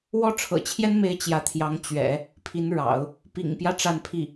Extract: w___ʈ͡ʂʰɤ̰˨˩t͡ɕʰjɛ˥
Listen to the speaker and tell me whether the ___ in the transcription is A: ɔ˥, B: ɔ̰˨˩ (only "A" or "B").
A